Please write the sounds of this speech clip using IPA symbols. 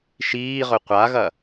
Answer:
ʃ iː ʁ ɵ qʷ a ɣ ɐ

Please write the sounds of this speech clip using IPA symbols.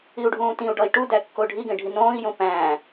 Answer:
i u̯ ɖʱ ũː t ĩ u̯ ɖ ɒ i̯ ʈ u d æ kː o ɖʱ i ɡ ẽ ɖʱ i n õː i̯ j õ p æ̃

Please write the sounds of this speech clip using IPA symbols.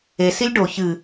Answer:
e s i lʲ ɖ o ç ɨ

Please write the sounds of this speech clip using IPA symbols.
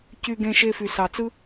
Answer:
c y˧ ɡ ẽ˧ ʃ e˧ f y˨ s ɑ˨ t͡s ɯ˦

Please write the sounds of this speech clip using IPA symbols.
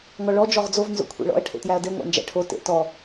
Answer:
ŋ ɔ ɭ ɔ d͡ʒ ɔ ʁ d͡z o v n z o̰ kʷʰ ḛ ɭ ɔ̰ ɐ̯ ʈʰ ḛ t j æ ɐ̯ d e ŋʷ æ̰ n d͡ʒ æ̰ ʈʰ o t ḛ t ɔ

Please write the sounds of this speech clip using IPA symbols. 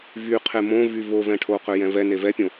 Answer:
v y qʰ e m õ v y v o v ɛ̃ ʈʰ o q ø j ɛ̃ v ɛ n e v ɛ pʲ õ

